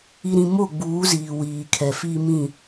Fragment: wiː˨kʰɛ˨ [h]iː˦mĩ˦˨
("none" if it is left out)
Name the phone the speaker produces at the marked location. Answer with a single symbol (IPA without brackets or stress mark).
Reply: f